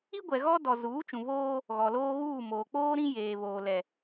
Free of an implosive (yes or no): yes